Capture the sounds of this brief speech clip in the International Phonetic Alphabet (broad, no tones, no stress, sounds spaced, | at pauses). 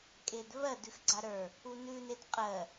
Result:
kʼ e d β ɜ d ʉ x ɡ͡ǀ a ɾ ə˞ | u n ʉ n e d qʼ ɜ